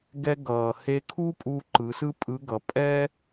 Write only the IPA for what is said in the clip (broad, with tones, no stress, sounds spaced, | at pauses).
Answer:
ɡ ɛ˧ ɡ ʌː˩ h e˧ kʰ u˥ pʼ u˧ ǃ ɯ˩˧ s ɯ˥ pʼ ɯ˧˥ ɡ ʌ˩˧ pʼ ɛ˥